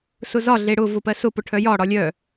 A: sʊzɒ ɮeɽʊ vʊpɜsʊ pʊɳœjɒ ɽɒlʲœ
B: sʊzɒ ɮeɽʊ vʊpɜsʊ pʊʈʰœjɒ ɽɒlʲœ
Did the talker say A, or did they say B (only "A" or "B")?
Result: B